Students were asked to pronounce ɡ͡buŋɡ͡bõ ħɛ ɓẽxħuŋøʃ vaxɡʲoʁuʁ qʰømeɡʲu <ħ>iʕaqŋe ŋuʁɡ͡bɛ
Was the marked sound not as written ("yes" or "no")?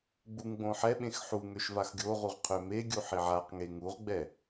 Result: no